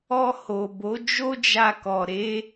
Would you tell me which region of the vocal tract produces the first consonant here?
throat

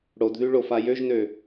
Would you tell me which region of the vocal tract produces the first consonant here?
retroflex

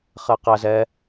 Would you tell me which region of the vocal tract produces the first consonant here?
uvula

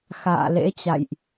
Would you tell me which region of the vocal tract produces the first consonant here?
velum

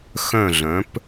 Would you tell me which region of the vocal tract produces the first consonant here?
velum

